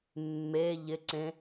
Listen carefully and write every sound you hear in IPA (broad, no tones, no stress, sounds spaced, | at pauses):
mː e ʎ ɪ ǀ ẽ